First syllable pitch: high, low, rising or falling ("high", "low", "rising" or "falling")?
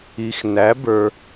low